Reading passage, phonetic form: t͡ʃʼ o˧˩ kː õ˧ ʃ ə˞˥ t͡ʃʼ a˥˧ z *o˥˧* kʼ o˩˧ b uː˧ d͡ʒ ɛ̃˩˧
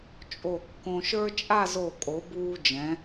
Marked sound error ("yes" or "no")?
yes